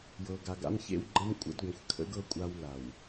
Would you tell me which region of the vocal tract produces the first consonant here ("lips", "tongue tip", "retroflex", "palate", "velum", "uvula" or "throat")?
palate